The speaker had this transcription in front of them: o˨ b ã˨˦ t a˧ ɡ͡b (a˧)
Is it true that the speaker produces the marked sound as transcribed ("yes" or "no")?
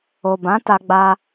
yes